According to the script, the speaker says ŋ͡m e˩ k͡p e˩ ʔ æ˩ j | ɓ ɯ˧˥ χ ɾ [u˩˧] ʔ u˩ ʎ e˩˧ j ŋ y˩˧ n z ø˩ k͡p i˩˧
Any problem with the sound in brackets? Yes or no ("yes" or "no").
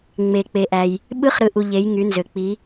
yes